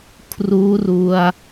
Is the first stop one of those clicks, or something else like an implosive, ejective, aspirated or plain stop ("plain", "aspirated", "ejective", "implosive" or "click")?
aspirated